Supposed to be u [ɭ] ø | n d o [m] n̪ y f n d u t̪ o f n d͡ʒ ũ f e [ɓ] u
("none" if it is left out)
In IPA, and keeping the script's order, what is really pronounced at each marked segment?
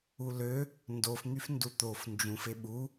l, f, ɓ

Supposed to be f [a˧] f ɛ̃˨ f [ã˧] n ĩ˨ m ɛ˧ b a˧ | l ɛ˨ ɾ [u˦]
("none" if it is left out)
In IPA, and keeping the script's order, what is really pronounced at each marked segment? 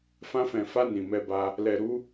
ã˧, a˧, u˨˦

